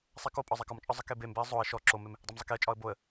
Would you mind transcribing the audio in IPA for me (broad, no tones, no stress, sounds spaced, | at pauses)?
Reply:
sˤ ɛ k o pʼ ɒ zˤ ɛ k ɒ m t͡ʃʼ ɒ zˤ ə k e b e m b e ə̯ zˤ o ə̯ ʃ ɔ ǁ o m e m | dˤ ɛ m zˤ ə k e ə̯ t͡ʃʼ ɒ ə̯ b o ə̯